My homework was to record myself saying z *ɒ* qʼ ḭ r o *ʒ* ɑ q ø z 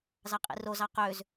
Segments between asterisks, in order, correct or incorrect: incorrect, incorrect

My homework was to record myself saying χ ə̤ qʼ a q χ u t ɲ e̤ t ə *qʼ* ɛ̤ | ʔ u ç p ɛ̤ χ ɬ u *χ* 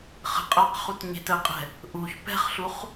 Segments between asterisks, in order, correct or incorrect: correct, correct

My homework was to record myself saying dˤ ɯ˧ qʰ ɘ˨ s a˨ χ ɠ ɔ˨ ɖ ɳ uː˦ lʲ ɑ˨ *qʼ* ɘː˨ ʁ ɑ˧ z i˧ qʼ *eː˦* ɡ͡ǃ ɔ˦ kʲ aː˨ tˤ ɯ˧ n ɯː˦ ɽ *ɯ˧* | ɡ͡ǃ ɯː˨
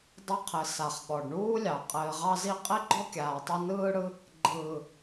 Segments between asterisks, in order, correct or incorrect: correct, incorrect, incorrect

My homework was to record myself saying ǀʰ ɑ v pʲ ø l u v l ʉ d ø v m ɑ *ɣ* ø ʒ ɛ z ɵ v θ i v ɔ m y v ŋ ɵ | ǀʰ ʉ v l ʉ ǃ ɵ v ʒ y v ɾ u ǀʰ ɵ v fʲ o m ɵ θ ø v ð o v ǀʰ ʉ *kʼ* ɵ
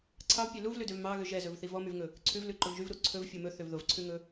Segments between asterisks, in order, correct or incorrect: correct, incorrect

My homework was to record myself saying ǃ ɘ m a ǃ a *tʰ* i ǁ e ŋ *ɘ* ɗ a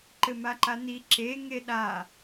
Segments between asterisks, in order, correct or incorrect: incorrect, incorrect

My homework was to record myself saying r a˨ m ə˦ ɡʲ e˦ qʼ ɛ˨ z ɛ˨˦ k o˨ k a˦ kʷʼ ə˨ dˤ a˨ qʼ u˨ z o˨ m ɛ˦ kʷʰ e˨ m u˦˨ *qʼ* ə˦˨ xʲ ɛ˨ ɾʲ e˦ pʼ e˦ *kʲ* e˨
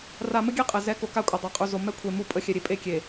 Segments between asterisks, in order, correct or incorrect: incorrect, correct

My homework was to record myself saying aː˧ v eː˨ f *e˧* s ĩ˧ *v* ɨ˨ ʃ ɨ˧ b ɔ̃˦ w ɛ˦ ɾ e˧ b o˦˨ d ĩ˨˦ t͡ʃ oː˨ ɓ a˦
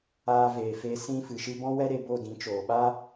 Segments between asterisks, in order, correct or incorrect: correct, incorrect

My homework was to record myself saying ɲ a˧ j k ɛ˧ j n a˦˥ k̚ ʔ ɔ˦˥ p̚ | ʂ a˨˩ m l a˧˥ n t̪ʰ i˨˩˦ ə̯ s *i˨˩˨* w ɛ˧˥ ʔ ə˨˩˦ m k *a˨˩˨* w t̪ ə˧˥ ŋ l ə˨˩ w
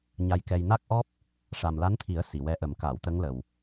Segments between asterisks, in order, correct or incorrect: correct, correct

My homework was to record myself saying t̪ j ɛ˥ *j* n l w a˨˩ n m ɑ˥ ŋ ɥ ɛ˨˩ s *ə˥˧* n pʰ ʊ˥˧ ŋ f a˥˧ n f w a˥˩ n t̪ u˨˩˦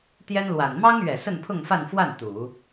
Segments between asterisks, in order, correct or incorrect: incorrect, correct

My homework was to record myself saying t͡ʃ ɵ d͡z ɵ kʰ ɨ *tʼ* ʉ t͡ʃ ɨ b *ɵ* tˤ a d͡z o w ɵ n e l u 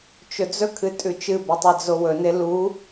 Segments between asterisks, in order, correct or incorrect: correct, correct

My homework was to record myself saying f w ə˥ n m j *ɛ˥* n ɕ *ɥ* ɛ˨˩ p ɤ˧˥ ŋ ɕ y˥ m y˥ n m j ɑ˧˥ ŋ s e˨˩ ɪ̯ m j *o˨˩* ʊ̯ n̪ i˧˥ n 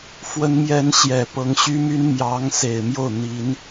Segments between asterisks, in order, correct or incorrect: correct, incorrect, incorrect

